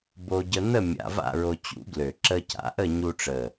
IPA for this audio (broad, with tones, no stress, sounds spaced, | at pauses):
b o˧ ɟ ə˧ n̪ ə˥˨ mʲ a̰˧ v a̰˥˨ ɹ o˧ t͡ɕ ṵ˨˥ ɡ l ø˨˩ ǁ ə˧ c a̰˨˥ ʔ ə˥˨ ɲ u˧ ʈ͡ʂ ə˨˩